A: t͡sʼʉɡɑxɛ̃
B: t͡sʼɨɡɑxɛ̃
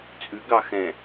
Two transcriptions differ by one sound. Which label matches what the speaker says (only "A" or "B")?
A